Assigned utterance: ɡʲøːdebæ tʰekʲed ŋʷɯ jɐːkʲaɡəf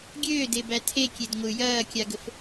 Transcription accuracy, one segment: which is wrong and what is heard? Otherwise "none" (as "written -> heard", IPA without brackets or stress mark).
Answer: none